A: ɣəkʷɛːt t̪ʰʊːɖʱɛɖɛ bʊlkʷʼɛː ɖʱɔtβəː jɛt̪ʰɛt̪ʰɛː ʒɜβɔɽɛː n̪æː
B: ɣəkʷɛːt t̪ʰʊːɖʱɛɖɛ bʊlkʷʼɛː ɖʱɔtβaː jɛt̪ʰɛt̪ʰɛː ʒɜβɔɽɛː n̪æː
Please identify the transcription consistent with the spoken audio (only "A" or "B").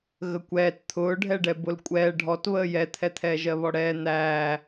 A